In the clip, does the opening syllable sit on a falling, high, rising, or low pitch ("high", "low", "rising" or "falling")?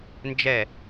falling